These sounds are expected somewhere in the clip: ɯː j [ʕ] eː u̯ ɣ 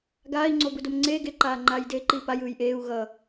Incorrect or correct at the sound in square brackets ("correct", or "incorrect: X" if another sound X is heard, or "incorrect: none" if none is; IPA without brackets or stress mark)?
incorrect: ʔ